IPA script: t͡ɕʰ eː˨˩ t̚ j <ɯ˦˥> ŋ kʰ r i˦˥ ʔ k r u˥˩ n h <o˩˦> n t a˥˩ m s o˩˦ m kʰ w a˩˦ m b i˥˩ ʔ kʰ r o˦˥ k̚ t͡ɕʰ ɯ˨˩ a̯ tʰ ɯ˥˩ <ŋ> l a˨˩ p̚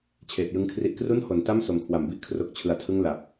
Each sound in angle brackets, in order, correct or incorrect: correct, correct, correct

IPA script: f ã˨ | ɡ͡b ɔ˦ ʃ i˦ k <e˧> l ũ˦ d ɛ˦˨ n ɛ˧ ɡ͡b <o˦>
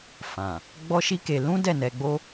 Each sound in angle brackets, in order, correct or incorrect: correct, correct

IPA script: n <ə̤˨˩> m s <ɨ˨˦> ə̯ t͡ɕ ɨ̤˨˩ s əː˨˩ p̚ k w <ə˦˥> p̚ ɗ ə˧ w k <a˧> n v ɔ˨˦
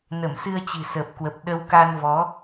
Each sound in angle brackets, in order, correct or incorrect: incorrect: ə˧˩, incorrect: ɨ˧, incorrect: ə˨˩, correct

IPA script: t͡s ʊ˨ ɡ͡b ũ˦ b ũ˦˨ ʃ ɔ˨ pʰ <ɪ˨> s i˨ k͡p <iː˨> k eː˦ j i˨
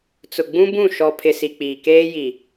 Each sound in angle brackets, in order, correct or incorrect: correct, correct

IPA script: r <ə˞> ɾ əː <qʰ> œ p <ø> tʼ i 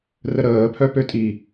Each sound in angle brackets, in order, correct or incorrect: incorrect: ə, incorrect: pʰ, correct

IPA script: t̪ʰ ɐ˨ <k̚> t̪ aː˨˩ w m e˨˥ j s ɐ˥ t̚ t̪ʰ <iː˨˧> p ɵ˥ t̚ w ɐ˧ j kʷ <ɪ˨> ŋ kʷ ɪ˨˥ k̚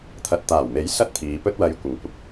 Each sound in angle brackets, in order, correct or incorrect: incorrect: t̚, correct, correct

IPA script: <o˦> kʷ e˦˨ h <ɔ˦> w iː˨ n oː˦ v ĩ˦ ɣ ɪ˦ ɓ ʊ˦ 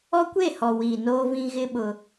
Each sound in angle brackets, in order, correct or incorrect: incorrect: ɔ˦, incorrect: ɔ˨

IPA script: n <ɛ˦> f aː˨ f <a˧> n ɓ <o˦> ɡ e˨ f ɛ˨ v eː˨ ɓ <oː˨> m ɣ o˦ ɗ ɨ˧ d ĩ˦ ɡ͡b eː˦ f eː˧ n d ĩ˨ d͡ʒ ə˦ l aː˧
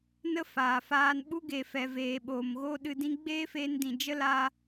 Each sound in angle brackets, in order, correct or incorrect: incorrect: ə˦, incorrect: aː˧, incorrect: u˦, correct

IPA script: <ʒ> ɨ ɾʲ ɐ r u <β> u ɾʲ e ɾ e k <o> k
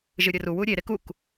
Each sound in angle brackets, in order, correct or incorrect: correct, incorrect: w, incorrect: u

